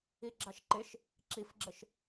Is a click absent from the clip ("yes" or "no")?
no